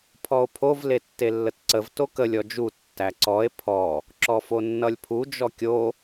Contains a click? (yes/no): yes